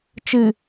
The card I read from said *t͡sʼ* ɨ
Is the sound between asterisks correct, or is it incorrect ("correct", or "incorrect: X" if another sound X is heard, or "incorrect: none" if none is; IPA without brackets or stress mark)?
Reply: incorrect: t͡ʃ